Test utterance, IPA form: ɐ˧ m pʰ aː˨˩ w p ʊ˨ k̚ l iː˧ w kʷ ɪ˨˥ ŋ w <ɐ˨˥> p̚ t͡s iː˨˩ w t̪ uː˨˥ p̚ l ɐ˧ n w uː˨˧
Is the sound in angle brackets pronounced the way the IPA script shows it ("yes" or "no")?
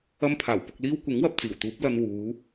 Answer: no